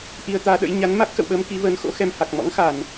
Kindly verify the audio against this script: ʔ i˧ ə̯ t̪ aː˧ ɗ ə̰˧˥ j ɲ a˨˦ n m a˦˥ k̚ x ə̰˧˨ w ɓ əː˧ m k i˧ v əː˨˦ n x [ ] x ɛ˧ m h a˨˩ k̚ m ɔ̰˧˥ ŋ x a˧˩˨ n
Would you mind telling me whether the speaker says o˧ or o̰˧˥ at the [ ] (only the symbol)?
o̰˧˥